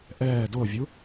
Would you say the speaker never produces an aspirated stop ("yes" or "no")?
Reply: yes